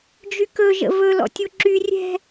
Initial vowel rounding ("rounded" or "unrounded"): rounded